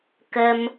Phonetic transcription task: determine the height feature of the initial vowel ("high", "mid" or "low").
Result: mid